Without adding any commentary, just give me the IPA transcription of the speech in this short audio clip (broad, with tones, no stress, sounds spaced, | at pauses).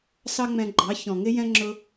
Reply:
s ɑ˦ ŋ͡m ɛ̃˧ ɡ͡ǃ ɑ˨˦ ç ɔ̃˨ ŋ ɪ˧ j ɛ̃˧ ŋ͡ǁ ʊ˧